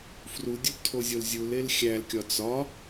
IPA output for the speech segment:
f r u dʲ u b tʰ o zʲ o l zʲ u l e l xʲ æ l kʲ ɒ t͡s ɒ

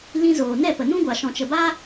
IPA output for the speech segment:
l ĩ˧ z oː˨ n ɛ˦˨ p ə˨ n ũ˦ ɡʷ a˨ ʃ ɔ̃˨ t͡ʃ ə˨ b a˦

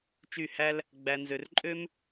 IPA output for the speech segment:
t͡ʃ y˥˨ h æ˥ l | ɡ͡b æ˥ n z ø˥ r ǃʼ ø˥ m

